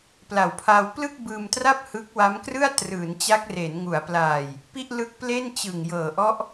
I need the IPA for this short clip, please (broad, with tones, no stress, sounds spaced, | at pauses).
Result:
p l a˨˩ w pʰ aː˧ w p l ɯ˥˩ k̚ b ɯː˧ m t r a˥˩ p̚ h ɯ˦˥ k̚ w a˦˥ m k r ɯ˥˩ a̯ t r ɯː˩˦ n t͡ɕ a˦˥ k̚ r e˩˦ n ŋ u˩˦ a̯ p l aː˨˩ j | p i˥˩ ʔ l ɯ˦˥ k̚ p l e˥˩ n t͡ɕ ɯ˨˩ ŋ j ɤː˨˩ ʔ ɔ˦˥ ʔ